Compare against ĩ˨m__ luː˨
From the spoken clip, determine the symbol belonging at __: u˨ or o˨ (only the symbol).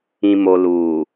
o˨